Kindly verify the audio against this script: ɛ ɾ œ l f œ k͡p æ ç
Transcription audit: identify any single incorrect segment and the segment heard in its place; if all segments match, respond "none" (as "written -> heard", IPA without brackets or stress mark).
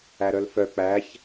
ɛ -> æ